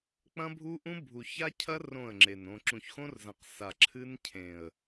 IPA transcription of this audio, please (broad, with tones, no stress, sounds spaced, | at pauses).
k͡p ɐ̃˦ bʱ u˦ ʔ ũ˦ bʱ u˨ ç a˦ cʰ ɐ˦ r õ˦˨ ə̯ ŋ͡ǁ e˨ n õ˨ ǁ ũ˨ ç x õ˦ r z ɐ̃˨ q s a˨ ǁʰ ɨ˦ n cʰ ẽ˨ ə̯